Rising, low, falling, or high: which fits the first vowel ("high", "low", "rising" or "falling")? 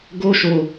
high